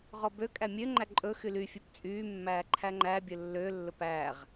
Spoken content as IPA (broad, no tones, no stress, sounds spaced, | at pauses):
ʁ ɔ b ø kʼ æ mʲ ø ŋ͡ǃ æ ǃʼ ɵ x y l y fʲ ø p t͡sʼ yː mː æː ǃʰ æ ŋ͡ǃ æ bʲ ɵ lː ø lː ɵ p æ ʁ